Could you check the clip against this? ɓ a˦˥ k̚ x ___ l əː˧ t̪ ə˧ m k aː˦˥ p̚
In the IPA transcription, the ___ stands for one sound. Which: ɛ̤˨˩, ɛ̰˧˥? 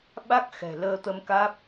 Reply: ɛ̤˨˩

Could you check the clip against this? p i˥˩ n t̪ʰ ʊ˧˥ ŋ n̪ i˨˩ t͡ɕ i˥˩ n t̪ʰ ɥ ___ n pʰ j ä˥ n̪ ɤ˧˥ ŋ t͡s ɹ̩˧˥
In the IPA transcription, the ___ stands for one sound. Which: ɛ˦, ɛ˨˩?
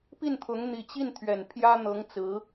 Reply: ɛ˨˩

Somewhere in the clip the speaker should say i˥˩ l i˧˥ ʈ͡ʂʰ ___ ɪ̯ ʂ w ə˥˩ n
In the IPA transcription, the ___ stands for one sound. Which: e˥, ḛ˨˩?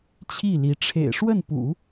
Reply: ḛ˨˩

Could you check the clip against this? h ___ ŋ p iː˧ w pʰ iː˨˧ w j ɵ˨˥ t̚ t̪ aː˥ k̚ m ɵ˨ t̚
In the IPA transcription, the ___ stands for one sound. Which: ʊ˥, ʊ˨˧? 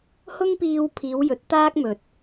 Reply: ʊ˥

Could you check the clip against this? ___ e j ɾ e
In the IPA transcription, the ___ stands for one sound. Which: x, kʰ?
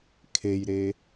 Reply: kʰ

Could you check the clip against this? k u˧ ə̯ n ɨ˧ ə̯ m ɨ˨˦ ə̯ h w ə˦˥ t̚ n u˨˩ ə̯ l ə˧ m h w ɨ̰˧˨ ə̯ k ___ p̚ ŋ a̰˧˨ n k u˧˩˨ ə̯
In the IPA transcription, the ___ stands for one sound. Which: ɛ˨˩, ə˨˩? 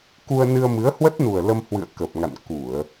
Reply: ə˨˩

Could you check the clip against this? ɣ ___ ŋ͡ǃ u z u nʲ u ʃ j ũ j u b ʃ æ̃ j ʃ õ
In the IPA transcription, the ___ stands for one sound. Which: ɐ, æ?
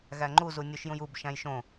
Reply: æ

